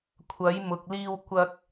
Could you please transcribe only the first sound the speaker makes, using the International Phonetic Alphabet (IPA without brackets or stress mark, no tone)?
kʷʰ